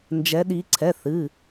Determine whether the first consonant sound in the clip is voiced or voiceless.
voiced